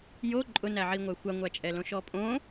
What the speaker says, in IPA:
j o ǃʼ ʊ n æ ʕ i ŋʷ æ xʷ a ŋʷ æ t͡ʃʼ ɛ l õ ʃ ɔ pʼ õ

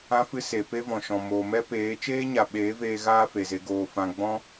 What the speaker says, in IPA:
ã˦ f ɨ˦ s e˨ p e˦ v ɔ̃˨ ʃ ɔ̃˨ m oː˨ m ɛ˦ p eː˨˦ t͡ʃ eː˦ ɲ a˨ ɓ eː˨˦ v eː˧ ɣ aː˦ f e˨ z e˧ ɡ oː˨ f ã˧ ɡ͡b ɔ̃˦

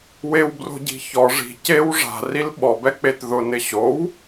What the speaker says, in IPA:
w e w b r o̤ ɟ i̤ ç ɔ ʐ i̤ c e w ʐ a̤ r i l ɓ ɔ b ɛ k͡p e t ð ʊ n ɪ ɕ o w

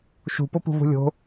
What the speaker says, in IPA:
ʃ ṳ p o p ṳ v ṳ lʲ o̤

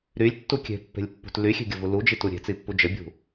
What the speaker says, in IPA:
ɾ y lʲ tː u kʲ e̤ pː e̤ lʲ pː ṳ t l y xʲ e̤ ɡʲ ə v u l u d͡ʒ i t u ɾʲ e̤ t͡s i pː u d͡ʒ ə bʲ ṳ

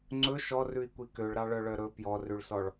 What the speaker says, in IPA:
ŋ͡ǀ ɵ ʃ ɔ r ʉ i̯ kʷ i k ø ɭ ɾ ɑ ɭ œ ɭ œ ɾ ɵ p j ɔ r ʉ ɭ s ɔ ɭ

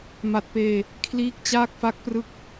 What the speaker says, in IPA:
m a˨˩ t̚ p eː˧ | kʰ l iː˦˥ k̚ t͡ɕ aː˥˩ k̚ f a˦˥ k̚ p r ɯ˦˥ k̚

